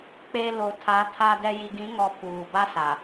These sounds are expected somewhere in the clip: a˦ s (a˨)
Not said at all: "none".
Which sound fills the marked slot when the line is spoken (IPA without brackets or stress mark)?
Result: a˨